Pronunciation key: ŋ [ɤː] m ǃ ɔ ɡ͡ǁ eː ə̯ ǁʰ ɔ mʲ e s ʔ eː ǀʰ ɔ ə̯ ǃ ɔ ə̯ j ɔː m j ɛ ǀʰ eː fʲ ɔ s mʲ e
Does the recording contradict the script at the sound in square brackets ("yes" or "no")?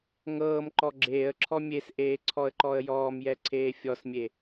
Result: no